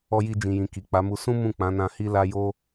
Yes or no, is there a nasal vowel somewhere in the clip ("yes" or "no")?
yes